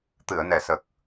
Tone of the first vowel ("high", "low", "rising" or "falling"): low